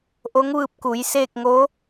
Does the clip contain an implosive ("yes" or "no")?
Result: no